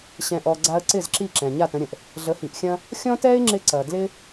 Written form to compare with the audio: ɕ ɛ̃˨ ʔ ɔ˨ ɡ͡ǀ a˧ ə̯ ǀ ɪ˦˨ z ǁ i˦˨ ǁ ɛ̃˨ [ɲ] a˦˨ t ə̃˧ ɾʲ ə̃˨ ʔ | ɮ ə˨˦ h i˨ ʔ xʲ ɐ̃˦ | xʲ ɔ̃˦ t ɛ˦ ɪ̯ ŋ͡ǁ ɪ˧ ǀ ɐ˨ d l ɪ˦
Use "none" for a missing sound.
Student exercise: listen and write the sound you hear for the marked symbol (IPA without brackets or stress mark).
ɲ